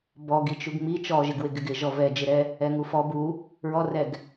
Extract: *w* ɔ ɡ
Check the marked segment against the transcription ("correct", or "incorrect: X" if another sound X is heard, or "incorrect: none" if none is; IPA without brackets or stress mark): incorrect: b